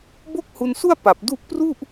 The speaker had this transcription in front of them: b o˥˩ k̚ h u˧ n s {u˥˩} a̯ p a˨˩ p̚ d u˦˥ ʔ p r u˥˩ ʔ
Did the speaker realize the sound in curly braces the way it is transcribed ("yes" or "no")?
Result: yes